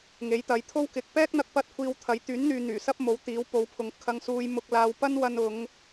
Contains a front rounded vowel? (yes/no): yes